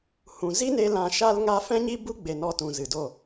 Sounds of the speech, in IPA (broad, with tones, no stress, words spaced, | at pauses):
hũ˨ zi˦ne˧ lã˧ʃa˦lŋa˦ fɛ̃˦ɲi˦bu˦ɡ͡be˨ nɔ˧tũ˨zɨ˨do˦˨